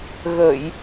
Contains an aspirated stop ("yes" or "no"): no